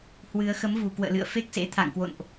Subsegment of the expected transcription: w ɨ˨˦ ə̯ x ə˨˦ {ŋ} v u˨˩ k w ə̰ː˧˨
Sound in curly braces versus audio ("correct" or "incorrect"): incorrect